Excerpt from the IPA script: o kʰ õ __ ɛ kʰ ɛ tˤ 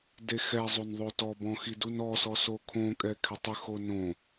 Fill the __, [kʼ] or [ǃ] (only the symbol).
kʼ